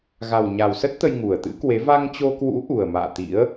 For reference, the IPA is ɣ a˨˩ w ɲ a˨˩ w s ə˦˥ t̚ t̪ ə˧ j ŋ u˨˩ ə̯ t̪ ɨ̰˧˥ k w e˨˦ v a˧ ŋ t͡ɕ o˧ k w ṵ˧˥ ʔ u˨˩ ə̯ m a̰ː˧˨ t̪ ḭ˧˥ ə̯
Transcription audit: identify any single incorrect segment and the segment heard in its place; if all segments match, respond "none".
none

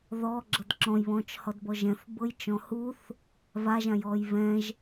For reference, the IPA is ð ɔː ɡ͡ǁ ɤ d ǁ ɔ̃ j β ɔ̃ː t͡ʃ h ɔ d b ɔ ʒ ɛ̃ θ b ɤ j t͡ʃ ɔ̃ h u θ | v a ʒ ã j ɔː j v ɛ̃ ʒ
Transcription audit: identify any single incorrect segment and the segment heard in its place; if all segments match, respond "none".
none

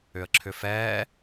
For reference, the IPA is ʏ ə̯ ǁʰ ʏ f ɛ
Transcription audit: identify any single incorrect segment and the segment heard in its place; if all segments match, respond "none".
none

